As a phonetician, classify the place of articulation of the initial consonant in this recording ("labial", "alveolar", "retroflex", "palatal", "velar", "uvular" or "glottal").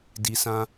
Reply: alveolar